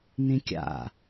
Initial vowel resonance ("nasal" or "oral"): nasal